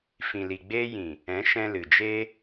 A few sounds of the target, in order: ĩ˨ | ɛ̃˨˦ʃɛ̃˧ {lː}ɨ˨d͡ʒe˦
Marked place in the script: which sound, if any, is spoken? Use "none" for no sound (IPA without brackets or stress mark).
l